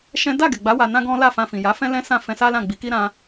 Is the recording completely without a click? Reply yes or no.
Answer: yes